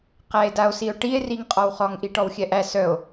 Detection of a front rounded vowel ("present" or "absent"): present